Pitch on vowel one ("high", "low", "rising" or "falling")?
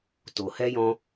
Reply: low